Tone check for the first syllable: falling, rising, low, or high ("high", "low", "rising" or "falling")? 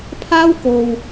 high